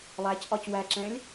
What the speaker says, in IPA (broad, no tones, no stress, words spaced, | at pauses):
lˠæcʔɒc wæǁɛ̃lʲ